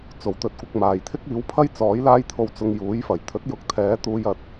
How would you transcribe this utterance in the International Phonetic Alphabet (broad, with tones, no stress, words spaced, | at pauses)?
t͡so˨˩wt̪ɵ˨˥t̚kʷɪ˨k̚maː˨˩j t̪ʰɪ˥k̚iː˨˥wpʰɐ˥j t͡sɔː˨˥jlaː˥jt̪ʰo˧w t͡sʊ˧ŋjuː˨˥jfɐ˨˩j t̪ʰɵ˨˥t̚jʊ˨˥k̚ t̪ʰɛː˨˥ t̪uː˧jɐ˨t̚